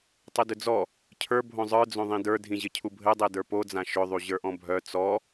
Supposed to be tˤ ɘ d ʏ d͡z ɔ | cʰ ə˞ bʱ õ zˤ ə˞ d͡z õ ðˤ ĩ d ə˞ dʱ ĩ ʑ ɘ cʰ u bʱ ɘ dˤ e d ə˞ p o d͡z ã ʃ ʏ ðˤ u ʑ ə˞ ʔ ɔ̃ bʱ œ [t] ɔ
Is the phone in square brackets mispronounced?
yes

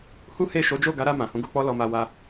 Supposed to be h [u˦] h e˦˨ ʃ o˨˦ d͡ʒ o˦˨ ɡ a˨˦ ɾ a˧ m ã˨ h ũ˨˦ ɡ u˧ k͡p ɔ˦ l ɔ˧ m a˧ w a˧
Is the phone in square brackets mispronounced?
no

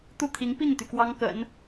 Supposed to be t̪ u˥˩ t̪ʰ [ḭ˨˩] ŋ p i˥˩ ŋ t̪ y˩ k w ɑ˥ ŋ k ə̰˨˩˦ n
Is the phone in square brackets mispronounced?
yes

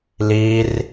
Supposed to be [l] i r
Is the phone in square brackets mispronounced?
no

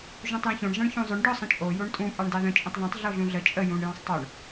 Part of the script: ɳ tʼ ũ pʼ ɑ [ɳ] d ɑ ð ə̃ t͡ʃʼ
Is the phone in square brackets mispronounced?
no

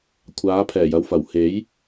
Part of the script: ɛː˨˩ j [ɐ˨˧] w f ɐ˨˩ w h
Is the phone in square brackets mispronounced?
no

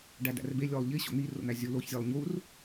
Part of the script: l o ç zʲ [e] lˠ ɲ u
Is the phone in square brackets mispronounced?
no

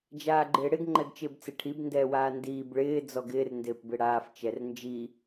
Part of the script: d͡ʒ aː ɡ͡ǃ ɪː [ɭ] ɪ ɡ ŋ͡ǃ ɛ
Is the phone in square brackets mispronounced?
yes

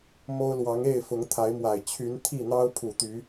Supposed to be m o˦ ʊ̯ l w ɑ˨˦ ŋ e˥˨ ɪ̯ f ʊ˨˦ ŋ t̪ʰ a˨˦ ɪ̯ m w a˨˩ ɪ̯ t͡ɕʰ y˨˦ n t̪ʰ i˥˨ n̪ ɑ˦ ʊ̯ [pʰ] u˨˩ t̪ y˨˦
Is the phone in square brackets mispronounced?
no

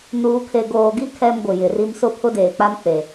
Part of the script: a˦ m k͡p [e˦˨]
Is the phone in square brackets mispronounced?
yes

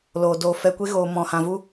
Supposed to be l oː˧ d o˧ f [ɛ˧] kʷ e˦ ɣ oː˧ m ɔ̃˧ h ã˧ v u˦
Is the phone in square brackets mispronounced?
no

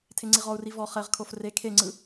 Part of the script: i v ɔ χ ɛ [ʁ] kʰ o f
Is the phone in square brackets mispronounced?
no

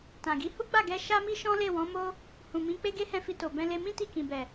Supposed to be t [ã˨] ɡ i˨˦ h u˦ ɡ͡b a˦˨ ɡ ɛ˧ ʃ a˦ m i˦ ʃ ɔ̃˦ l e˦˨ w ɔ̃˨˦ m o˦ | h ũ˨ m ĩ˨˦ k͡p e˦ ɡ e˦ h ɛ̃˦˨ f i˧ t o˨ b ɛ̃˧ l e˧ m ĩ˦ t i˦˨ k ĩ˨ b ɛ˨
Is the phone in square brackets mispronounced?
no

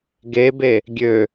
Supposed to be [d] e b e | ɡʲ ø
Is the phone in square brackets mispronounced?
yes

